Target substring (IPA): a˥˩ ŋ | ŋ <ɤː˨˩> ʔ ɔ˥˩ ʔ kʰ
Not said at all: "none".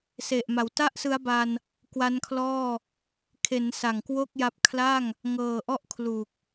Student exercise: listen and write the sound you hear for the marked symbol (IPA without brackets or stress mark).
ɤː˨˩